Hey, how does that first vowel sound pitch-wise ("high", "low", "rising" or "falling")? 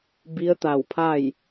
rising